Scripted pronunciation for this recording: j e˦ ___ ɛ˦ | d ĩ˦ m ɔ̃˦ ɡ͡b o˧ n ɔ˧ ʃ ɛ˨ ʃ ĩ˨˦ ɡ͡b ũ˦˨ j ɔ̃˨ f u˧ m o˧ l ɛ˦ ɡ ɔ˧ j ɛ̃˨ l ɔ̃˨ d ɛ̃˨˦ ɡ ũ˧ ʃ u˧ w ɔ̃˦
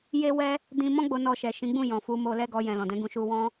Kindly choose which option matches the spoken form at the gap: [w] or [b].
w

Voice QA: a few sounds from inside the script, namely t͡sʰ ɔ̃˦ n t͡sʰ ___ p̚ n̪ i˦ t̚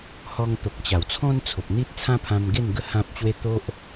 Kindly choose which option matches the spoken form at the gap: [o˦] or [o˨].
o˨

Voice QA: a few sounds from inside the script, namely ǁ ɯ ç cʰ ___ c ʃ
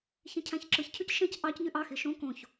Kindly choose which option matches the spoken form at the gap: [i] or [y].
y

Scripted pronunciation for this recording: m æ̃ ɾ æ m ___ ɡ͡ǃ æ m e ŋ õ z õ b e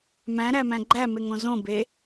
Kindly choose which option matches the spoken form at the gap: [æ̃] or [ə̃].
æ̃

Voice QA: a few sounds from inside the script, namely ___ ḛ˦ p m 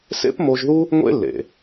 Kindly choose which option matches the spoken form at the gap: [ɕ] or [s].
s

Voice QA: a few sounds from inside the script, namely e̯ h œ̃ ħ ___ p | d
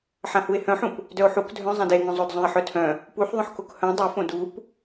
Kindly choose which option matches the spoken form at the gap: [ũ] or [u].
ũ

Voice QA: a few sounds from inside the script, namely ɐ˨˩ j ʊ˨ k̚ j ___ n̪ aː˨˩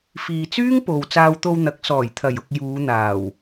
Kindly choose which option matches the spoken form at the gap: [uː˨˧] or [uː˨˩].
uː˨˧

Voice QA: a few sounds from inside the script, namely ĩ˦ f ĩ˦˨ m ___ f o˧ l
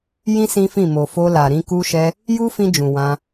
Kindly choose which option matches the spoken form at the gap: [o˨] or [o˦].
o˨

